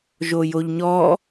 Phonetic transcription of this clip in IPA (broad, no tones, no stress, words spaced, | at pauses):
ʒojoʎɲɔ